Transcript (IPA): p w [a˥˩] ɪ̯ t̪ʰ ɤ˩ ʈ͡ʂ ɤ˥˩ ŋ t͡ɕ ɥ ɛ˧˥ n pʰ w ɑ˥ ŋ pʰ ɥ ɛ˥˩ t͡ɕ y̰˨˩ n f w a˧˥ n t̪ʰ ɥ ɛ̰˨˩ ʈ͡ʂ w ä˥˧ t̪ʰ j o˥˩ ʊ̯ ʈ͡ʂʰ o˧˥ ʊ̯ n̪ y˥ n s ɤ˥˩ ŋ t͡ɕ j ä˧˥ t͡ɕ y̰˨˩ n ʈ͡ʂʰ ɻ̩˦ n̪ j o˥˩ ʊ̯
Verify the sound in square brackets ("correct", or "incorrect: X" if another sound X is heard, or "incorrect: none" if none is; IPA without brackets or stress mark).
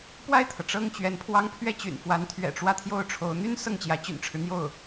correct